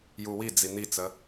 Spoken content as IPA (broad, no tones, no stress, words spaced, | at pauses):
juwid͡zi n̪it͡sə